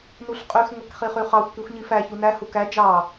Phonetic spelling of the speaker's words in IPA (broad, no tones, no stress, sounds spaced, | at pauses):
n u ɬ qʼ y x ŋʷ æ k χ i χ y χ ɑ xʷ k y xʷ ɲ i f æ ç u n æ h u k æ d͡ʒ ɑ